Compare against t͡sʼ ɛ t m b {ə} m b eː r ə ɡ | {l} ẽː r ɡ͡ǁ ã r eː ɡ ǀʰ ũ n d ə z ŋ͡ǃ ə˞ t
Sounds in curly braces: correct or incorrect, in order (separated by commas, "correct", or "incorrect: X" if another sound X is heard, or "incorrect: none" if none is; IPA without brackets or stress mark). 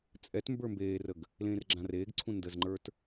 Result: incorrect: ə˞, correct